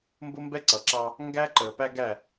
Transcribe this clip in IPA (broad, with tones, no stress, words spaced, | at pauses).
mbʊ˦mbɛ˦ǀʌ˨ǁɑ˦ | ŋɡæ˦ǃəː˨ pæ˦ɡæ˦˨